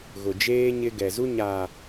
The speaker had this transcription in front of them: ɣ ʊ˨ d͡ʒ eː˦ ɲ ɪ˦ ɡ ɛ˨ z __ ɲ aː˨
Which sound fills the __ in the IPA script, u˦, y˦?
u˦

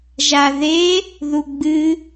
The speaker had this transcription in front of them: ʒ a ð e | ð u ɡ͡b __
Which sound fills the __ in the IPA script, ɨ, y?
ɨ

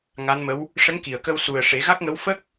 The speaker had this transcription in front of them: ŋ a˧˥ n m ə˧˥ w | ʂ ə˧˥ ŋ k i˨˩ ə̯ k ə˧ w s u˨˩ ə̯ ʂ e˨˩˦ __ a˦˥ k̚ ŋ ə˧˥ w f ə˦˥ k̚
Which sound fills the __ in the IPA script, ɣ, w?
ɣ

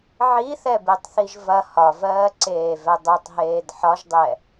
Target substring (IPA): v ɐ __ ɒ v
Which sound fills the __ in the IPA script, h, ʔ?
h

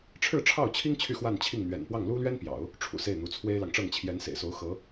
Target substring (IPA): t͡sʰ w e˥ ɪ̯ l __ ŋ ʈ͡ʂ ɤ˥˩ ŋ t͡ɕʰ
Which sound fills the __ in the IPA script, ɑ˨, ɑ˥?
ɑ˨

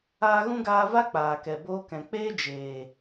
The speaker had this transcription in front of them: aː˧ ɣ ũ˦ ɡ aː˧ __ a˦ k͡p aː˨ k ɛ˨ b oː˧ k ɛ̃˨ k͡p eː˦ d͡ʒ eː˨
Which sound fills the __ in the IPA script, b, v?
v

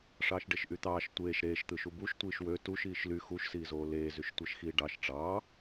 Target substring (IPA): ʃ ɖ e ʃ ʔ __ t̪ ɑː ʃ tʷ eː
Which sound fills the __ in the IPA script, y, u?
y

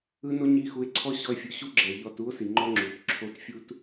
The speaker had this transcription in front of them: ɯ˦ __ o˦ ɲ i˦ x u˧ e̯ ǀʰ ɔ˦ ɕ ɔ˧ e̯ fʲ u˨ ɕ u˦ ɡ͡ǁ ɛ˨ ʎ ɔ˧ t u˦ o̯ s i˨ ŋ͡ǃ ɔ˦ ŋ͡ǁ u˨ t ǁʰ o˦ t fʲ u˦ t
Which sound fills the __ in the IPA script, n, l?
n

